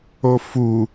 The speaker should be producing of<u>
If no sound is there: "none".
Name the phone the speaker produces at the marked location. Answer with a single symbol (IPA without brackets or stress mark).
u